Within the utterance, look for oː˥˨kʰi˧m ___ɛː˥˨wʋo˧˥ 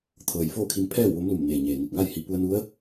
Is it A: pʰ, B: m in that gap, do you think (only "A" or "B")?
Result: A